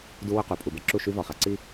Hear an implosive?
no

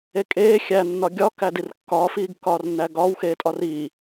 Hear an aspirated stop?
no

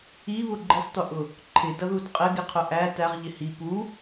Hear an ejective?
yes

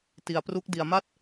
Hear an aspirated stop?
no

